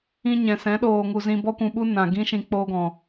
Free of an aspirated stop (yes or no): yes